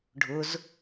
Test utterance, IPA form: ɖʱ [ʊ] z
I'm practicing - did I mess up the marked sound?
no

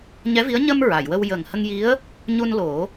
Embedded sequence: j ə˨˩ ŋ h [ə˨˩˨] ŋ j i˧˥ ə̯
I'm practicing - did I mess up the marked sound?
yes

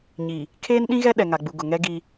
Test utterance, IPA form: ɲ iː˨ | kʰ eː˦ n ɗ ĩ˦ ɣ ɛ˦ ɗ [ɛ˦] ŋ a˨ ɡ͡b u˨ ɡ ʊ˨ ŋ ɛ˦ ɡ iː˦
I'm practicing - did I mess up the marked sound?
yes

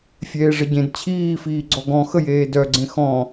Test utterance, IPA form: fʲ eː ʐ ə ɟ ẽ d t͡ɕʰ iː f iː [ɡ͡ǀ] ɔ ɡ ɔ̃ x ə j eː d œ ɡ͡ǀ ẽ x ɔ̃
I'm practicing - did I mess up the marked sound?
no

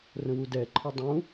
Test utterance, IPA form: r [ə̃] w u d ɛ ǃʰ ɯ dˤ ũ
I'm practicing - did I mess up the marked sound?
no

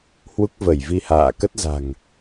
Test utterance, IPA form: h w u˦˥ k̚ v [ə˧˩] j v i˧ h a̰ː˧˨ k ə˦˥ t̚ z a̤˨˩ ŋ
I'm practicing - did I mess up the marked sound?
no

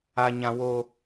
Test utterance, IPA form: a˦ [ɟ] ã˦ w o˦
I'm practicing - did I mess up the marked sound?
yes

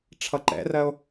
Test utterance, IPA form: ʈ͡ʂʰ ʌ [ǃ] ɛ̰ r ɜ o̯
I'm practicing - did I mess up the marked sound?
no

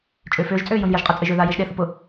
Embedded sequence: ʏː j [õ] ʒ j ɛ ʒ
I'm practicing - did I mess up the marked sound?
no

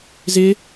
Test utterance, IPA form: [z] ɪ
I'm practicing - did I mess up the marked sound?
no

